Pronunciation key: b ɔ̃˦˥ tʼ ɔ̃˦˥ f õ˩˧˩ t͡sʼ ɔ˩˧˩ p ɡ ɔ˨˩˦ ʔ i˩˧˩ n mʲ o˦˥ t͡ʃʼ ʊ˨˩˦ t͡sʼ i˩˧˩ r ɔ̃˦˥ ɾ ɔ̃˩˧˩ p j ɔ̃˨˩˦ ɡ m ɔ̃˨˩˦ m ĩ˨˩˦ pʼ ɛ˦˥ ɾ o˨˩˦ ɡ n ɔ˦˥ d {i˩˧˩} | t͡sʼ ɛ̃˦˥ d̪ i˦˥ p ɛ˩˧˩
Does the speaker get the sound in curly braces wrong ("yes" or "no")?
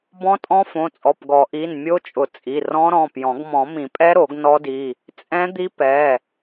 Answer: no